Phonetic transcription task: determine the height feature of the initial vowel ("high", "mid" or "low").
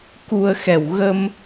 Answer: high